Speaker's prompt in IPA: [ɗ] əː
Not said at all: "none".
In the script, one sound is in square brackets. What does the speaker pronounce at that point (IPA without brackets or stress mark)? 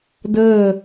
d